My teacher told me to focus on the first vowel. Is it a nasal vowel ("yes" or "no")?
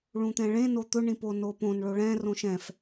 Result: yes